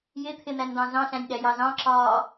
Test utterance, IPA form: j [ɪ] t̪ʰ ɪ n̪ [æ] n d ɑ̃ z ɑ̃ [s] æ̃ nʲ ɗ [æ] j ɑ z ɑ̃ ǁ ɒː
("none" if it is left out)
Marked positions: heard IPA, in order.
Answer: ɪ, æ, ɬ, æ

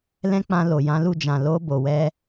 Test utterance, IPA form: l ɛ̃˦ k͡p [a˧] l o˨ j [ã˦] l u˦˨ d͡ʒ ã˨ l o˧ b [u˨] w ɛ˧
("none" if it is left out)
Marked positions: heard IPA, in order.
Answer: ã˧, ã˨˦, o˨

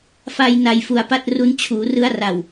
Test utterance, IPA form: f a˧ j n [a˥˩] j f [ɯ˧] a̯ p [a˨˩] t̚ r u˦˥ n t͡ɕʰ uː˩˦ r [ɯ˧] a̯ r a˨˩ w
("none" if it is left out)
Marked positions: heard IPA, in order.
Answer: a˧, u˧, a˥˩, ɯ˦˥

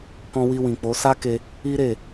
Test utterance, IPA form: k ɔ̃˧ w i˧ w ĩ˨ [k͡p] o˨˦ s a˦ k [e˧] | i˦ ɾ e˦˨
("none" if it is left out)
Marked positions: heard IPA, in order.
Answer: k͡p, e˧

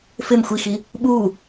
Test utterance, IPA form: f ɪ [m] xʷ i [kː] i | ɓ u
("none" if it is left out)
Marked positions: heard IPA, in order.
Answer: m, x

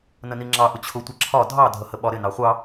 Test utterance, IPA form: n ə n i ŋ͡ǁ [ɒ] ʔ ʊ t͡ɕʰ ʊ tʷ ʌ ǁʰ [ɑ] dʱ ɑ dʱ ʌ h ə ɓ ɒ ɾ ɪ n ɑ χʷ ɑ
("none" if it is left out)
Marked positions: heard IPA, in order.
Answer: ɑ, ɒ

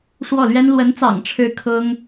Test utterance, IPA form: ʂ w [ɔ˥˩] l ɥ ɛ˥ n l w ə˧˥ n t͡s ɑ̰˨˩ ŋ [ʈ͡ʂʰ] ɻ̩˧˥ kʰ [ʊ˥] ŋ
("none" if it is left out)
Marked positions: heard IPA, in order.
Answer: ɔ˥˩, ʈ͡ʂʰ, ʊ˥

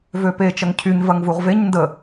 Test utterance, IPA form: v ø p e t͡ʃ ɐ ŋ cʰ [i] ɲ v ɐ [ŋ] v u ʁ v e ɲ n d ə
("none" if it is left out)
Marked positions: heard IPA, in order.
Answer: y, ŋ

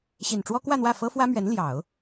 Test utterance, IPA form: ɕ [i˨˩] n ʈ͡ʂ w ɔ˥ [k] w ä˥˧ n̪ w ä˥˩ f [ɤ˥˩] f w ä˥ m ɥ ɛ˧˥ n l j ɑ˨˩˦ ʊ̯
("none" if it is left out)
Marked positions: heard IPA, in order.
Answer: i˨˩, k, ɤ˥

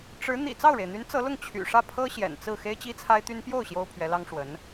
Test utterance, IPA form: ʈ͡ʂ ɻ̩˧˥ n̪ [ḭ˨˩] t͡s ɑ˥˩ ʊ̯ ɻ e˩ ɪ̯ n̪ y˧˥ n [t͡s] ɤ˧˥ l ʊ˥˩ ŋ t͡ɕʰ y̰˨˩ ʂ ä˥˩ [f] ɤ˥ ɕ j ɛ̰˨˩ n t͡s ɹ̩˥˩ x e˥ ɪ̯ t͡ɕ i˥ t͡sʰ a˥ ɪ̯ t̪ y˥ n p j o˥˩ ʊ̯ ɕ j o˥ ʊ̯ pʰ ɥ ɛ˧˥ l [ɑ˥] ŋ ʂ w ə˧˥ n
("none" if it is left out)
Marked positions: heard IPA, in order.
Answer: ḭ˨˩, t͡s, pʰ, ɑ˥

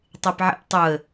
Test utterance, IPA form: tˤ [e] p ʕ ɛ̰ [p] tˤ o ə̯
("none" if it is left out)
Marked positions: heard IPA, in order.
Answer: e, p

